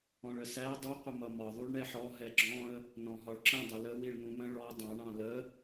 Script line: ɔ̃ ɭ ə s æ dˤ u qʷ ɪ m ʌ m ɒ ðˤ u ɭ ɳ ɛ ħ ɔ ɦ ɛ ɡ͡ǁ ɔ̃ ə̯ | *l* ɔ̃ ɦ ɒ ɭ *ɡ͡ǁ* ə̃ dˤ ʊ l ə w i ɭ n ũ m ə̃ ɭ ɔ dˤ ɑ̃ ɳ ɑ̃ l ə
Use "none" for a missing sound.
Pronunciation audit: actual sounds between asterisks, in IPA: n, ǁ

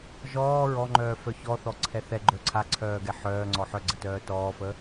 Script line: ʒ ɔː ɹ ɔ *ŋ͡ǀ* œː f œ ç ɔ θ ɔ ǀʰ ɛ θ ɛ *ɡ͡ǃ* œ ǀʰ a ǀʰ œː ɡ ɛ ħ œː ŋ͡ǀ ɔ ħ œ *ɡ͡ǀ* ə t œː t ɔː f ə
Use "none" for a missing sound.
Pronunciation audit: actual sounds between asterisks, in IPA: ŋ͡ǃ, ɡ͡ǃ, ɡ͡ǀ

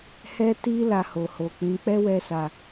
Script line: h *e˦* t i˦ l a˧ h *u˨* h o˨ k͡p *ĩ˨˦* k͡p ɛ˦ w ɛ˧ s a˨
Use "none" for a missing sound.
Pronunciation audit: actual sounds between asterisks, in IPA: ɛ˦, o˨, ĩ˨˦

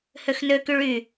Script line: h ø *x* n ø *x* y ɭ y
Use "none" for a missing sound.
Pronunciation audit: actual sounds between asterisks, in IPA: x, k

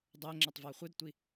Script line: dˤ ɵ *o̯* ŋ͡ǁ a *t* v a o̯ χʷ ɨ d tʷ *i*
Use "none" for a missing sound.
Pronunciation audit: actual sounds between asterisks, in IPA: e̯, tˤ, i

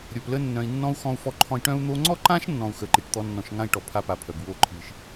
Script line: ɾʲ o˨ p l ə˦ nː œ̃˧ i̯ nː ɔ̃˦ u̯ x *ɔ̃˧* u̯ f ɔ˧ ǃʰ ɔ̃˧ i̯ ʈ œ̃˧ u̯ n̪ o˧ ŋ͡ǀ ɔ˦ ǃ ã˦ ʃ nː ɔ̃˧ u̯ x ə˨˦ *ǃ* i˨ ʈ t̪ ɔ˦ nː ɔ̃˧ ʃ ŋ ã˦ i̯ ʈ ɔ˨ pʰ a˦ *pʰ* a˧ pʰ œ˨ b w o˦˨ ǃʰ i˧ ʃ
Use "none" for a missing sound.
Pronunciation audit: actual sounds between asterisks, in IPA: ɔ̃˧, ǃ, p

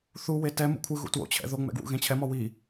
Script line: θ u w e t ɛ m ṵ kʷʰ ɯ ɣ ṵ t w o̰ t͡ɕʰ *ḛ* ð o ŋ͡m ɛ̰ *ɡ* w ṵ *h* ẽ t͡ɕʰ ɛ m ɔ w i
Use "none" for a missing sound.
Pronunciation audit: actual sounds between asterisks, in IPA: ɛ̰, ɡ, ɣ

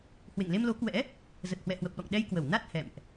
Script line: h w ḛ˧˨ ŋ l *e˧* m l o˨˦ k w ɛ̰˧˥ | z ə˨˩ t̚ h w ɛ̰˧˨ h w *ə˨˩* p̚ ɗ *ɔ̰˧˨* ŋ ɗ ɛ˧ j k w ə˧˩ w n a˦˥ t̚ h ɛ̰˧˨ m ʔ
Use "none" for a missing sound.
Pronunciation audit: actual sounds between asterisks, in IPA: e˧, ə˨˩, ɔ̰˧˨

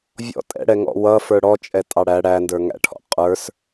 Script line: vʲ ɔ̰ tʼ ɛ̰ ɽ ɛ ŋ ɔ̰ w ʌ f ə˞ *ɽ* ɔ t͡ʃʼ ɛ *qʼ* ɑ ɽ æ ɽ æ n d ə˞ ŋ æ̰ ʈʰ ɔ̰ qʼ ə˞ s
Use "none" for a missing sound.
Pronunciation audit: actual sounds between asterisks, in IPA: ɽ, tʼ

